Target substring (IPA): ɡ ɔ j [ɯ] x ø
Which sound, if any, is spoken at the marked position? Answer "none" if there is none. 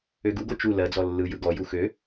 u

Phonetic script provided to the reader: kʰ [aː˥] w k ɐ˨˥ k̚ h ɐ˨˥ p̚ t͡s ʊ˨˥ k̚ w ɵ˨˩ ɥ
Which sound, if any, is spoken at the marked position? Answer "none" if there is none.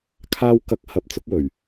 aː˧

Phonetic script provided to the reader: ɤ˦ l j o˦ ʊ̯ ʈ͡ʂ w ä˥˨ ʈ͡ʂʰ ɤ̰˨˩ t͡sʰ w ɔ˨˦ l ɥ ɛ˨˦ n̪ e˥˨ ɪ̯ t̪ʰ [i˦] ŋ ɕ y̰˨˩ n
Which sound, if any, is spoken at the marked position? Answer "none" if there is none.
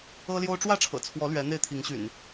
i˨˦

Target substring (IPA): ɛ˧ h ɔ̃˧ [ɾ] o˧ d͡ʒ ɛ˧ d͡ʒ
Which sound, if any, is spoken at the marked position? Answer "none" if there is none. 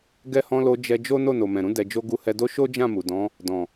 l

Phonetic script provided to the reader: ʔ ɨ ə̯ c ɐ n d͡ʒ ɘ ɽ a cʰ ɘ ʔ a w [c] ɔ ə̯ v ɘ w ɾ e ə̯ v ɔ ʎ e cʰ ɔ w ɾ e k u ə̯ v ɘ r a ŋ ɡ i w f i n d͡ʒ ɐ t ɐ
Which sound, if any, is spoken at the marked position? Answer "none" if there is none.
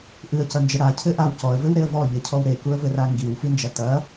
c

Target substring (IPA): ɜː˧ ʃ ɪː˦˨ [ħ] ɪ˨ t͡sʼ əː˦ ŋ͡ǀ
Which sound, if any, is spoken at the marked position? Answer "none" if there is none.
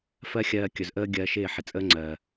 ħ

